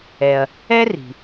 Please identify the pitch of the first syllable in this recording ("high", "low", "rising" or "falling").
low